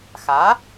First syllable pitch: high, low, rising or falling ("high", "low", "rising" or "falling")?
rising